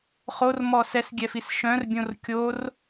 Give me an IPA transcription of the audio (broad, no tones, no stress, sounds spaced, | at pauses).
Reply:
χ o r m ɔ s ɛ s ɡʲ ɛ f i s ʃ œ̃ r bʲ õ r kʲ o r